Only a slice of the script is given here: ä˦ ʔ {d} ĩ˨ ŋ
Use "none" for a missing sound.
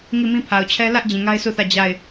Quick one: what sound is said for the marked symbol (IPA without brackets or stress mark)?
d͡ʑ